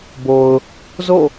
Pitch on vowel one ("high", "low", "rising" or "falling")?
low